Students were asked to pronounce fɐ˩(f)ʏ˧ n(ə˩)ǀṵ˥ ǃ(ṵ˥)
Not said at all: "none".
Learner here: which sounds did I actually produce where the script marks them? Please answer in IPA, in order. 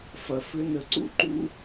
f, ə˩, ṵ˥

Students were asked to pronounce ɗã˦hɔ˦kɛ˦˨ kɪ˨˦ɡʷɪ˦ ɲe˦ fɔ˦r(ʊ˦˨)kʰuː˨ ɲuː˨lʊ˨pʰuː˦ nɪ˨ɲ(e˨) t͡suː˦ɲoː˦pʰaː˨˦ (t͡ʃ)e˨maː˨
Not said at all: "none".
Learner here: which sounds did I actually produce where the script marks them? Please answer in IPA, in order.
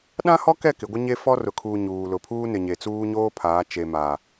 ʊ˨, e˨, t͡ʃ

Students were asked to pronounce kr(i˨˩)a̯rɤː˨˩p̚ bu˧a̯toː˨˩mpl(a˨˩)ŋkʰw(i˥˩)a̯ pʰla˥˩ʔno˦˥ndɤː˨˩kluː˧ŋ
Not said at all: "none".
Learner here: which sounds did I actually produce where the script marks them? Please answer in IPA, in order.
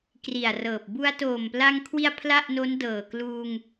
i˨˩, a˧, i˧

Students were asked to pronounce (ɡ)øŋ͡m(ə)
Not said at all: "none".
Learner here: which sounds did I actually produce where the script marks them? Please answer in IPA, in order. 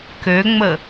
k, ə

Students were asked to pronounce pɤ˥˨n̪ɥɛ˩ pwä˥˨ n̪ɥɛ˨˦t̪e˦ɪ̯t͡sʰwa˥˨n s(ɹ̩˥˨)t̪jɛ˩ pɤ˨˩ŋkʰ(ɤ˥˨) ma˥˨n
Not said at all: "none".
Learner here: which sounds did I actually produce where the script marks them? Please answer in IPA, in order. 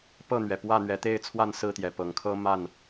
ɹ̩˥˨, ɤ˦

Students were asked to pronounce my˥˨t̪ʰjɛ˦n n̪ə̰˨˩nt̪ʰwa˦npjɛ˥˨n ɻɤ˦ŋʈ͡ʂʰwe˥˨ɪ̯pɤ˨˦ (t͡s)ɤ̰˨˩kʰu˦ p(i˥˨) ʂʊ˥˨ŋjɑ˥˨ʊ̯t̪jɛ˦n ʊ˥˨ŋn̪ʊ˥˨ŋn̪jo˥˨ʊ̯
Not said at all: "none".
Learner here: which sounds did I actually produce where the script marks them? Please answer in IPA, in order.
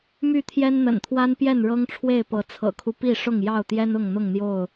t͡sʰ, i˥˨

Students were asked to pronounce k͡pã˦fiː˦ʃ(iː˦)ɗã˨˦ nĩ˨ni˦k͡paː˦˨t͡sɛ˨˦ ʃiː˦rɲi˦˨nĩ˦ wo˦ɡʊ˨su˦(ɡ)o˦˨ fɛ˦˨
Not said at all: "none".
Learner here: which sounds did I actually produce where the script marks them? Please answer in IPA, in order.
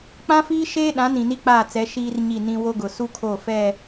eː˦, kʰ

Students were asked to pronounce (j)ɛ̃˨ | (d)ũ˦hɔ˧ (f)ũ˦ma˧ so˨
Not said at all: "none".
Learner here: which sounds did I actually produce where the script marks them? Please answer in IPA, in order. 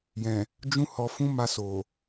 j, d͡ʒ, f

